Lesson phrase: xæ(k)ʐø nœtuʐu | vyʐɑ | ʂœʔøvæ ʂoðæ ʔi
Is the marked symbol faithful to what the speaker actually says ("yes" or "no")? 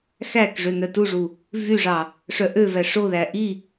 yes